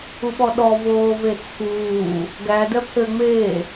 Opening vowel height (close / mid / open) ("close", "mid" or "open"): close